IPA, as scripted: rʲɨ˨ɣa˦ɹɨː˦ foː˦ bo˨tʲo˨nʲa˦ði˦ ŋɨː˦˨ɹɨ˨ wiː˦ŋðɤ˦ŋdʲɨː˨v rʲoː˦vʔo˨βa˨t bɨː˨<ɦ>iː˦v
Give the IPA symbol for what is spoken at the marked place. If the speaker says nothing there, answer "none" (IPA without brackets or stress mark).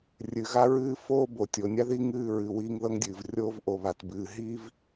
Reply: ɦ